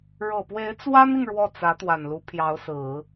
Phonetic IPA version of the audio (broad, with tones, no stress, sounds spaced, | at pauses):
ɻ ɤ˨˩ p w e˧˥ ɪ̯ t͡s w a˥ n i˨ ŋ ɻ w ɔ˥˩ t͡s ä˧˥ t̪ w a˨˩ n l u˧˥ pʰ j ɑ˧˥ ʊ̯ s ɹ̩˨˩˦